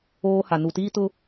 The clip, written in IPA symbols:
oː˦ h a˨ n u˨ t iː˦ t ʊ˦

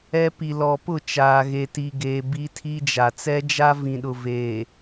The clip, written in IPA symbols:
ɛ˦ p i˨ l ɔ˨ p ʊ˦˨ t͡ʃ aː˨ ɣ e˨ t i˨ ɡ eː˨ b i˦ tʰ i˦ d͡ʒ a˨ t͡s ɛ˦ d͡ʒ a˦ v ĩ˨ ɗ ʊ˨ v eː˨

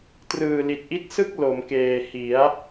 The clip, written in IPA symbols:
t r ɯː˨˩ l i˨˩ t̚ ʔ i˦˥ t̚ s ɯ˥˩ k̚ l o˩˦ m k eː˨˩ h i˩˦ a̯

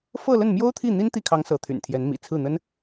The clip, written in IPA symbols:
f ɤ˥˧ l ə˥˩ n m j o˥ ʊ̯ t̪ʰ i˥˩ n̪ i˥ n t̪ i˥˩ kʰ ɑ˧˥ ŋ s ɤ˧˥ t̪ʰ y̰˨˩ n t̪ʰ j ɛ˧˥ n m ḭ˨˩ t͡sʰ ɹ̩˥˩ n̪ ə˥ n

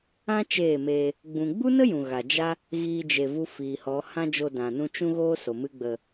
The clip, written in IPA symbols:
ã˦ t͡ʃ eː˦˨ m eː˧ | ɡ͡b ũ˨ ɡ͡b u˦ n ə˦ j ũ˨ ɣ aː˨ d͡ʒ a˦ | ɣ iː˦ d͡ʒ e˧ v u˦ f iː˨ h ɔ˨˦ h ã˦ d͡ʒ o˧ d ã˨ n ũ˧ t͡ʃ ũ˦ ɣ oː˦ s o˨ m ɨ˦ ɡ͡b ə˧

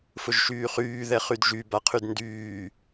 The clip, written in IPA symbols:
f ʊ ʒ ʃ yː χ yː ð ɛ χ y d ʒ y b a qʰ y d n d yː

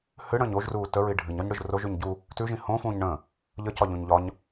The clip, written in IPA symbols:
h ɨ ɽ ə̃ː ɲ o ʒ r uː t ə ɹ i ɖʱ ɨ ɲ ɒ ɲ ɽ ɯ ʒ r o ʒ ʉ ɲ ɟ u | t ʉ ʒ ĩ h õ f ũː ɲ ɳ ə̃ː | ʎ ə c ɒ ʎ ũ ɲ ʎ ɒ ɲ

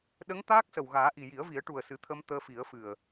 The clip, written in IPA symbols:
ɗ ə˧˥ ŋ t̪ aː˦˥ k̚ s ə˨˩ w ɣ aː˨˩˦ ʔ i˨˩ j i˨˩˦ ə̯ v i˨˩˦ ə̯ ʈ u˨˩ ə̯ s ɨ˨˩˦ t̪ʰ ə˧ m t̪ əː˧ f i˨˩˦ ə̯ f ɨ˨˩ ə̯

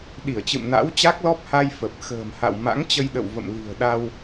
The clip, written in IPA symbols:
ɗ i˧˩ ə̯ t͡ɕ ɨ̰˧˨ m n a̰˧˥ w t͡ɕ a˦˥ k̚ l ɔ˦˥ p̚ h a˧ j f ə˨˩ p̚ x ə̤ː˨˩ m h a̰˧˨ w m a̰˧˥ ŋ t͡ɕ ə˧ j ɗ ə̰˧˨ w v ə̰˧˨ m l i̤˨˩ ə̯ ɗ a˧ w

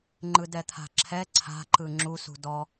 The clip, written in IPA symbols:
ŋ͡ǃ ɯ d ɛ t̪ʰ a̤ ǁʰ ɛ ǀʰ a̤ ǃ ɯ ŋ͡ǁ u s ṳ d ɔ

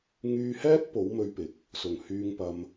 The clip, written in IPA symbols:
ŋ yː˧ h ɛː˥ t̚ p o˨˥ w m ɵ˧ ɥ p ɪ˨˥ k̚ | s ʊ˨˩ ŋ h yː˧ ŋ p ɐ˧ m

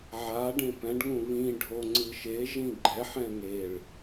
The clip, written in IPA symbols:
ʕ a ɖ ẽ p ɛ̃ ɖ ŋ ũ β ĩ ɖʱ o ŋ͡ǀ ɯ ʃ e ʒ ĩ ɡ͡ǃ ɛ ħ ɛ̃ ŋ e ɭ

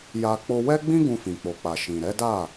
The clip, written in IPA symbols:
j a˧ k͡p o˧ w ɛ˦ ɡ͡b ĩ˦ ɡ ũ˧ f ĩ˨ k͡p o˨ k͡p a˨ ʃ ĩ˨ ɾ ɛ˨˦ d a˦˨

